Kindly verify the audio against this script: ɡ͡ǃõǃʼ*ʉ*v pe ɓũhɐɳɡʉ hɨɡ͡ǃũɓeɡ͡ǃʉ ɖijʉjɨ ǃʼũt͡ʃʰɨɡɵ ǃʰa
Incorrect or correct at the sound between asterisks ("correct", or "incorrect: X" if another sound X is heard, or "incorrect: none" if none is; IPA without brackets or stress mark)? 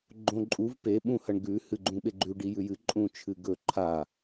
incorrect: u